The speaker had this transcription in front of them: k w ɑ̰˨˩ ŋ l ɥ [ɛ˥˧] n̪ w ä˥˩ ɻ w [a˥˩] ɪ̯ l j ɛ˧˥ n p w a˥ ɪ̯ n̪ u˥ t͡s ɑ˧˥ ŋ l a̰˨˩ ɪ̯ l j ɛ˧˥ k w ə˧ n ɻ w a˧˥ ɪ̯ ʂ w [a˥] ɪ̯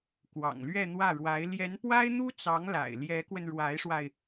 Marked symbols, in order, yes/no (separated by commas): yes, no, no